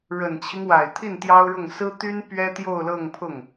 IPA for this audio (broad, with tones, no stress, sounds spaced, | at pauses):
ɻ ə˨˩ n t͡ɕʰ i˦ ŋ w a˨˩ ɪ̯ t̪ʰ i˥˩ n t̪ j ɑ˥ ʊ̯ ɻ ʊ˥˩ ŋ s ɹ̩˥ t̪ y˥ n p ɥ ɛ˥ t̪ j o˥˧ ʊ̯ l ɤ˥˧ ŋ pʰ ʊ˥˩ ŋ